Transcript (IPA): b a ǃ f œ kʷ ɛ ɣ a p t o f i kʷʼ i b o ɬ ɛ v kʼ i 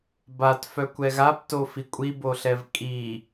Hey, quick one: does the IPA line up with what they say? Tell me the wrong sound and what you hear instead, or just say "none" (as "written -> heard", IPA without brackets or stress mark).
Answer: ǃ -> t